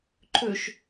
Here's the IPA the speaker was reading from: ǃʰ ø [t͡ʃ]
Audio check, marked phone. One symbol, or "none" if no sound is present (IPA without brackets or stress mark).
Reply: ʃ